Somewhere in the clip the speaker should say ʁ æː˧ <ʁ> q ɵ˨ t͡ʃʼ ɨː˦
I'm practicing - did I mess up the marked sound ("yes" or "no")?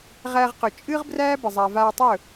no